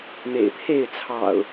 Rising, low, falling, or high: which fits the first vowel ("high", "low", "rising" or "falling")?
low